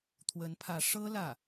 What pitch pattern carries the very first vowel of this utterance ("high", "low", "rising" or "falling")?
rising